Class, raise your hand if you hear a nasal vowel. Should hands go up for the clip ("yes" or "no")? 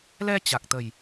no